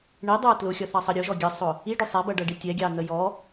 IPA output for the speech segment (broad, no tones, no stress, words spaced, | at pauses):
ɳidˤə˞ tlʊxʲʌθɑsˤə ɾʲʊʒɔ ɡʲəsˤʊ | iɖʊ sˤɛbʌɖʌɖi tʲɛɡʲɑn̪ə jɔ